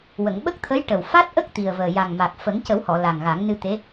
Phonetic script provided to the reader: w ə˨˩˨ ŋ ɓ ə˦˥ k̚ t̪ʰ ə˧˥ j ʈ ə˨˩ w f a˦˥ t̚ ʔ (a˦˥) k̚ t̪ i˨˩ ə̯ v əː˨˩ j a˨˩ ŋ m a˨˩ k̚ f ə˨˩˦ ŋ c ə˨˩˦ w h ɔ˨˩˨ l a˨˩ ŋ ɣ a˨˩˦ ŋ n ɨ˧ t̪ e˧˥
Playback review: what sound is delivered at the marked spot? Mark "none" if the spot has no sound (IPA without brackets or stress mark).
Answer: ə˦˥